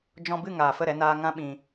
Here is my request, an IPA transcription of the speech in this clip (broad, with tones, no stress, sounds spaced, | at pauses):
d͡ʒ ɔ̃˧ b ɨ˦˨ ŋ aː˨ f ə˦˨ ɾ ɛ˧ n aː˧ ŋ ã˦ ɓ ĩ˧